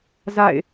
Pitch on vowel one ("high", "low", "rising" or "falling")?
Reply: falling